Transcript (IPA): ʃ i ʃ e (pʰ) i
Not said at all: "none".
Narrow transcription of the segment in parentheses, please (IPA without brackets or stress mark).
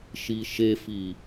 f